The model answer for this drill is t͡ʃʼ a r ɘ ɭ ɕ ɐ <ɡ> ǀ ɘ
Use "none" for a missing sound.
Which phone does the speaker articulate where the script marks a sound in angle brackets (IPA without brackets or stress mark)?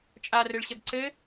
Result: ɡ